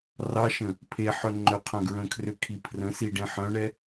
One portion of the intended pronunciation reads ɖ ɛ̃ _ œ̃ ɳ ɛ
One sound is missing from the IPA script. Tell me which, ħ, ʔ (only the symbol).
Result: ħ